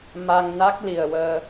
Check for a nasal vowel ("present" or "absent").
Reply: absent